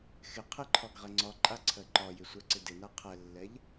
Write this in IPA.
xɪ qʰɪǃʰɒɡ ʁɛŋ͡ǀɒǃʼa ǀʰɜǃɒjɪ sʷɛǀɪdɪna qʰɛlːɛʎ

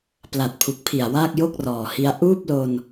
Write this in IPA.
pla˨˩t̚pʰu˨˩k̚pʰi˨˩a̯ waː˥˩k̚jo˥˩k̚rɔː˨˩hi˦˥a̯ ʔuː˥˩p̚lo˧n

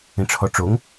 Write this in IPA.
ẽʈ͡ʂʰɔʈ͡ʂoŋ

